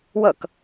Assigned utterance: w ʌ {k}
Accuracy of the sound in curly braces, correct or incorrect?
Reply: correct